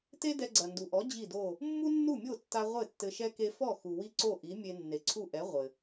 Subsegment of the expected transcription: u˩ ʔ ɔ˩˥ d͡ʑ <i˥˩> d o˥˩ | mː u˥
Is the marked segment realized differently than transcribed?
no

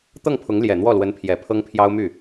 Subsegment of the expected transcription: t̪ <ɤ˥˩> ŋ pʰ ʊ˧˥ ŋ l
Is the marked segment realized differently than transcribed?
no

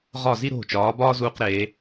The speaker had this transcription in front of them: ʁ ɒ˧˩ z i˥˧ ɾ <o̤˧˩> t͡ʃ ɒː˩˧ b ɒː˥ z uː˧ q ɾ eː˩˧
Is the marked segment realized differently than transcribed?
no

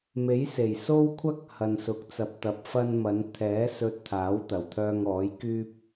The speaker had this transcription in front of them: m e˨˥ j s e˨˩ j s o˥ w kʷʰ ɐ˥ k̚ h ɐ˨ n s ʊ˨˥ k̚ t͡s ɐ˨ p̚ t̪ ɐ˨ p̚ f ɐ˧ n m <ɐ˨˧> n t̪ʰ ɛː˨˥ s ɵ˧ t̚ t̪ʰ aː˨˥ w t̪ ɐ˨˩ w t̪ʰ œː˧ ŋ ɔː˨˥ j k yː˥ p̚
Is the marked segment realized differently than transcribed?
no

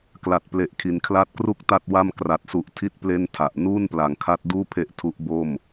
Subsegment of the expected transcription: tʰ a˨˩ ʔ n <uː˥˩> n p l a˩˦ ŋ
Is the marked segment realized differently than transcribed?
no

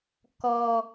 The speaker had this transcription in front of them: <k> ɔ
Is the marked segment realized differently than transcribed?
no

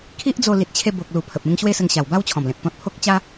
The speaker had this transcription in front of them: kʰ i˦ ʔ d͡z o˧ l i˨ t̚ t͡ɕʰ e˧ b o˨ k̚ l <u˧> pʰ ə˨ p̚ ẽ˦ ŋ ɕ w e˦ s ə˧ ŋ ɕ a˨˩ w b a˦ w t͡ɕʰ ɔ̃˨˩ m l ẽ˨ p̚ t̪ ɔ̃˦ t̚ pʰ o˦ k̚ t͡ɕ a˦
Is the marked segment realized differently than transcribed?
yes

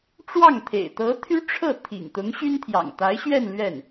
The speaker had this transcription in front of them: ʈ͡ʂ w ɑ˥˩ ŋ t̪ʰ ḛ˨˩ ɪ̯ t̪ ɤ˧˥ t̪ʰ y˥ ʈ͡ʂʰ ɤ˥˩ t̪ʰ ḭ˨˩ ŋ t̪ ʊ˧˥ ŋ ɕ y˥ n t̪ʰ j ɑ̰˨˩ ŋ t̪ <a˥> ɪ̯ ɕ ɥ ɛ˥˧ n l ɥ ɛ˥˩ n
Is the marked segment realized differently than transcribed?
yes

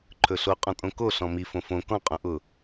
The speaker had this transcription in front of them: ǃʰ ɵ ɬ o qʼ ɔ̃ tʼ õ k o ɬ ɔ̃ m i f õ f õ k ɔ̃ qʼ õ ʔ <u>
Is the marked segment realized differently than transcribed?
yes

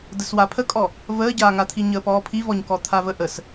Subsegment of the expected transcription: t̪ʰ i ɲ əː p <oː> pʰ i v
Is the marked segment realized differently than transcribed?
yes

